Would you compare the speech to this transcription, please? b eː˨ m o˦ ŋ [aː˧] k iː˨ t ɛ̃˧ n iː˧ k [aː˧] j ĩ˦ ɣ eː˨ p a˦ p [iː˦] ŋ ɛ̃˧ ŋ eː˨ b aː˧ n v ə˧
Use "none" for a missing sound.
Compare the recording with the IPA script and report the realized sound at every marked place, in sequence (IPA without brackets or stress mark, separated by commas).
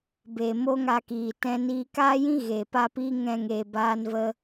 a˧, aː˦, iː˦